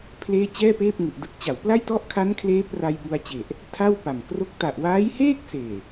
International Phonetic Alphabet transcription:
pʰ l eː˥˩ t͡ɕ ɛː˥˩ p eː˥˩ p̚ ŋ u˨˩ ʔ d ɯ˦˥ k̚ t͡ɕ a˩˦ w p l a˥˩ j t ɔ˥˩ ʔ kʰ a˦˥ n kʰ l eː˦˥ p r a˧ j b u˧ a̯ t͡ɕ e˨˩ ʔ | tʰ a˥˩ w p a˨˩ m k r o˥˩ k̚ t a˨˩ ʔ w aː˦˥ j h eː˥˩ k̚ s eː˨˩

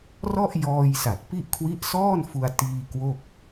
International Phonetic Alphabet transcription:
r ɔ˥˩ ʔ j ɔː˧ j s a˨˩ t̚ p i˥˩ ʔ kʰ w i˦˥ ʔ s ɔː˥˩ n f u˧ a̯ t iː˧ k w o˥˩ k̚

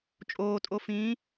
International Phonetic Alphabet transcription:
t͡ʃʼ oː tʼ o f ĩː

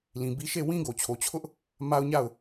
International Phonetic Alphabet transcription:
l ĩ˨ b i˦ ʃ e˦˨ w ĩ˦ ɡ o˨ t͡ɕʰ o˨ t͡ɕʰ ʊ˦ ʔ | m a˦ ʊ̯ ɲ a˦˨ ʊ̯

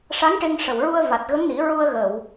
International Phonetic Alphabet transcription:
ʂ a˧˥ ŋ ʈ e˧ ŋ ʂ ə˨˩ w ɹ u˧ ə̯ v a˨˩ t̚ ɣ ə˧˥ ŋ n i˨˩˦ ɹ u˧ ə̯ ɣ ə˨˩˨ w

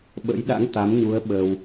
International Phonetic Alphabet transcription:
ɓ ə̰˧˥ j ɗ a̰˧˥ ŋ t̪ a˨˦ m ɲ u˨˦ ə̯ ɓ ə˧ w

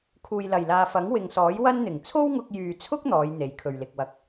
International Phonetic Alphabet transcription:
kʰ uː˨ j l ɐ˨˩ j l aː˨ f ɐ˨˥ ŋ w ɪ˨ ŋ s ɔː˨˥ j w ɐ˥ n n̪ ɪ˨˩ ŋ t͡sʰ o˥ w ŋ ʊ˧ k̚ j yː˨ t͡sʰ ʊ˥ k̚ n̪ ɔː˨˧ j n̪ e˨˥ j kʰ ɵ˨ ɥ l ɪ˨ k̚ w ɐ˧ k̚

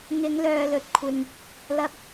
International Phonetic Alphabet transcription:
ŋ ɪ˨˧ ŋ l œː˨ l ɵ˨ t̚ kʷʰ ɪ˨ ŋ | l ɐ˧ p̚

